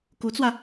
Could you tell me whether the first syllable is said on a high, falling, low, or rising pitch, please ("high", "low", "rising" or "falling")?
rising